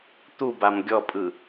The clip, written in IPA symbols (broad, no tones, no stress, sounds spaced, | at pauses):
t̪ u b a m ɡʲ ɔ pʼ ɯ